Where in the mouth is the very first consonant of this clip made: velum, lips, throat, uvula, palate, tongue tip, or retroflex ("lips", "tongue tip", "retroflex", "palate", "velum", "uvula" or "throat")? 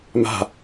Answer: lips